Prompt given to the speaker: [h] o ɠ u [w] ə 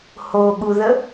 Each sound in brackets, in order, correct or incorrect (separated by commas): correct, incorrect